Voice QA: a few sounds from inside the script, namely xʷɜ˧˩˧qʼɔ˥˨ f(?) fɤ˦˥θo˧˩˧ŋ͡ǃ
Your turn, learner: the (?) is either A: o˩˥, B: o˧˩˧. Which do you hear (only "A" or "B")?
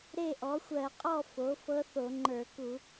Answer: A